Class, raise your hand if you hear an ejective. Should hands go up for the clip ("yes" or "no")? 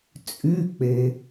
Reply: yes